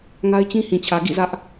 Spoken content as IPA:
ŋ a˦ ɪ̯ t͡ɕ ĩ˦ h ĩ˨ t͡ɕʰ ä˨ ɡ ḭ˦˨ z ä˦ ʔ

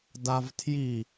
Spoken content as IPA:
d a v tʰ j i

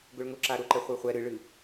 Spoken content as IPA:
ɡ ʊ ɭ ŋ ʊ ǁ a ɾ ʊ ǃ ɛ χʷ ə˞ χʷ ɛ ɾ ɨ ɭ ɨ

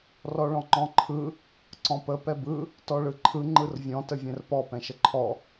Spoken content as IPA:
r ɔ ɭ ɔ̃ ŋ͡ǃ ɔ̃ ǃʰ ɯ | ǀ ɔ̃ p ə p ɛ b ɯ | t ɔ ɭ ɯ ǃʰ ɯ ŋ͡ǃ ɯ r vʲ ɔ̃ t ə vʲ ɛ̃ r p ɔ p ɛ̃ ʃ ə ǃʰ ɔ

